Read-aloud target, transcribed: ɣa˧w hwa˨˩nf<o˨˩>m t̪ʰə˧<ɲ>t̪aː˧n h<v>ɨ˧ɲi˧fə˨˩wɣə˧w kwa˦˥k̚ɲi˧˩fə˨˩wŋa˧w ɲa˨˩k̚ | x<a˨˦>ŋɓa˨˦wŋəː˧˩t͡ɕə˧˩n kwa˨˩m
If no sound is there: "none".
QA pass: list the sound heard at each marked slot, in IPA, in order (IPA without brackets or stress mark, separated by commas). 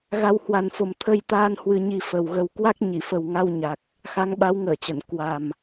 o˨˩, j, w, a˨˦